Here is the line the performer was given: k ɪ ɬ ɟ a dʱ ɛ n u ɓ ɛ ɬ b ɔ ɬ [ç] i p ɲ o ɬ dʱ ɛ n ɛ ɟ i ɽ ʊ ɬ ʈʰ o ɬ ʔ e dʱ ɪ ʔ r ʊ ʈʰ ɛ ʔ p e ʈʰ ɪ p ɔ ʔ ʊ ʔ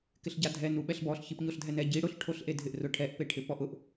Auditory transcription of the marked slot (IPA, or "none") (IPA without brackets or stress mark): ç